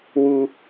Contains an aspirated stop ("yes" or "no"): no